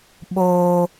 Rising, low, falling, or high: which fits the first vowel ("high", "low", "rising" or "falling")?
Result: high